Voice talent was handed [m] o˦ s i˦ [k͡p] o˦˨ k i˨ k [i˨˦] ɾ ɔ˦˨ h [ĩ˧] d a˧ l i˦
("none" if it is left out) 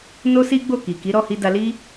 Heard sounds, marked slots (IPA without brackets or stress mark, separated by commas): n, ɡ͡b, i˨˦, i˧